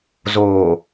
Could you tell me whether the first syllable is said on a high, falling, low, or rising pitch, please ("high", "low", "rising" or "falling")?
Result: low